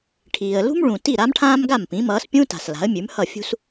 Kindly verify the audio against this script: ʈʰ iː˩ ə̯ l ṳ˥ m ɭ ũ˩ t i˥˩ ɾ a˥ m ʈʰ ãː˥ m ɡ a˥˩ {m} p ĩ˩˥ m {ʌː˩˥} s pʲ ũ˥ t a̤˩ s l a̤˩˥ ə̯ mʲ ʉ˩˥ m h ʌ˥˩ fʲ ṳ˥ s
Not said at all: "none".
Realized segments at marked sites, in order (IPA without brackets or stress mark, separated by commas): m, ʌː˩˥